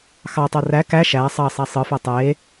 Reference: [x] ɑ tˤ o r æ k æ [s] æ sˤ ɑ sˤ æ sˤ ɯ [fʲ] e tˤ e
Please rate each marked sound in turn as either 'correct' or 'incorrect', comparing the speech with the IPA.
correct, incorrect, incorrect

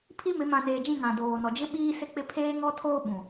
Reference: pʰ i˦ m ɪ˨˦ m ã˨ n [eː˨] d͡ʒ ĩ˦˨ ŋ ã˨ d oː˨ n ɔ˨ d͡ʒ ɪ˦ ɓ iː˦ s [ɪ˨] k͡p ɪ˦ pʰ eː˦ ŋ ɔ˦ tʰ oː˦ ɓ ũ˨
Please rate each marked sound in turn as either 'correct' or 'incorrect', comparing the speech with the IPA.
correct, incorrect

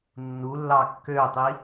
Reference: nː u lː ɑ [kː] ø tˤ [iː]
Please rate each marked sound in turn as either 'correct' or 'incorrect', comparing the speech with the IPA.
correct, incorrect

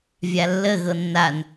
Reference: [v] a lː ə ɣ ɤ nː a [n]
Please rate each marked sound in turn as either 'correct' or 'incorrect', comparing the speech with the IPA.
incorrect, correct

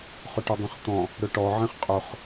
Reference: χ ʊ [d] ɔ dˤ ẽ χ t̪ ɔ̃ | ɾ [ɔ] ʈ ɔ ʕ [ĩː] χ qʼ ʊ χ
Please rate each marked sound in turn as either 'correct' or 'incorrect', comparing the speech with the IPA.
incorrect, incorrect, incorrect

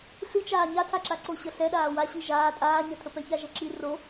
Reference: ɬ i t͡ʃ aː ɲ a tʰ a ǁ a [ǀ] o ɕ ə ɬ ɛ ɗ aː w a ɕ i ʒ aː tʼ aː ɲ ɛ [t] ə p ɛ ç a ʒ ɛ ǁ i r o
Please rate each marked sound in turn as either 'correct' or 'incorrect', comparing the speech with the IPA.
correct, incorrect

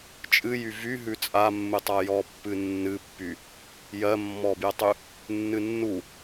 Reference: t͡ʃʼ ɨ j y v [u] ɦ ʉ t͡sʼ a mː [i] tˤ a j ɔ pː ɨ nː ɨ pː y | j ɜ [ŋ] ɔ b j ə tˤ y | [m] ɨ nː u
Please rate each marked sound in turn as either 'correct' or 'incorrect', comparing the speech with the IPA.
incorrect, incorrect, incorrect, incorrect

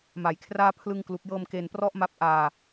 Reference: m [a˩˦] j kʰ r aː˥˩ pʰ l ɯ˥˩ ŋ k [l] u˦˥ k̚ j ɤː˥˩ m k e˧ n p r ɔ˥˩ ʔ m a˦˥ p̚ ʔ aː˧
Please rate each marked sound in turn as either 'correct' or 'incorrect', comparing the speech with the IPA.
correct, correct

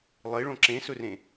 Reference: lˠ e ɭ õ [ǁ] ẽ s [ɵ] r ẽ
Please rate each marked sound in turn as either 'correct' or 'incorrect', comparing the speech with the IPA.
correct, correct

